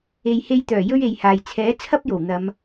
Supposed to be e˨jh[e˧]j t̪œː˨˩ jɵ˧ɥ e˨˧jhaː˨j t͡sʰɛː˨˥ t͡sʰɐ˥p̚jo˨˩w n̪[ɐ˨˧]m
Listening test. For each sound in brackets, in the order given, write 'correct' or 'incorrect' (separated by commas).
correct, correct